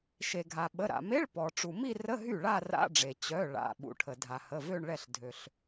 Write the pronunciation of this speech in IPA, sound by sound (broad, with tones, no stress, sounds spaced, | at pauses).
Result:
ʃ e˩ ɡʱ a˩ ɓ ə˩˧˩ ɾ a̰˩ m e˧˥˧ ɭ p ɔ˩ ʈ͡ʂ u˩ m i˥˧ r ə˧˥˧ ɦ y˥˩ ɭ a˥˧ r a̰˧˥˧ ɖ͡ʐ e˩ t͡ɕ œ˩˧˩ ɭ a̰˩˧˩ ɓ ṵ˩ ʈʰ ə˩ dʱ a˩ h ə˩˧˩ v ø˥˧ ɳ ɭ ɛ˥˩ ɬ dʱ ø˩ ɬ